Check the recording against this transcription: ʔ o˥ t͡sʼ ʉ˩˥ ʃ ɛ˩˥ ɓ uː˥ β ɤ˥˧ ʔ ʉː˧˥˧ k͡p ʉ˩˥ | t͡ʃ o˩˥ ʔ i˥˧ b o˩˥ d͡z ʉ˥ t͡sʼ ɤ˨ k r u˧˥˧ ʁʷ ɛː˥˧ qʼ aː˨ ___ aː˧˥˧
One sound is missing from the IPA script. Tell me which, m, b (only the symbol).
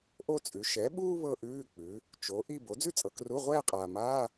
m